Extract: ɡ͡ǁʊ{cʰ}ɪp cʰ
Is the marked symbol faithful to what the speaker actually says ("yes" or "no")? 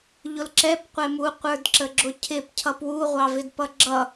yes